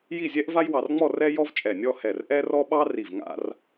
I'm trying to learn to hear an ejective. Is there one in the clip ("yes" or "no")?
yes